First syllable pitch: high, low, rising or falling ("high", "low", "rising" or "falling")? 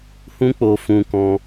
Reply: high